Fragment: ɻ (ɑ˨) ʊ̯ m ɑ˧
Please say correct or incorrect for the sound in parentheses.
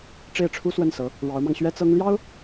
incorrect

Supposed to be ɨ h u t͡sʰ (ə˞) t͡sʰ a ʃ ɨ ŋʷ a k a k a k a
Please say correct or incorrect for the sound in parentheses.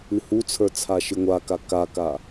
correct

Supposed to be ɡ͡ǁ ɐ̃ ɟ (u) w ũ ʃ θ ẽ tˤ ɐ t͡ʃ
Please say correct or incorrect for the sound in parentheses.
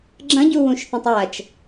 correct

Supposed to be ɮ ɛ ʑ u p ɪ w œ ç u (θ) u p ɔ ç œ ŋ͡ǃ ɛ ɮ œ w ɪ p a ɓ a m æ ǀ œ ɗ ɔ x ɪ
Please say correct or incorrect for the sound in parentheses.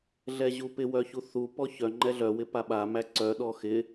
correct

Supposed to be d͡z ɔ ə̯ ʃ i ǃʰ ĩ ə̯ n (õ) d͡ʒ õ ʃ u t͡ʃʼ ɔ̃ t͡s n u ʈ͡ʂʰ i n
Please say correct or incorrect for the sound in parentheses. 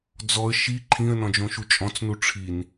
incorrect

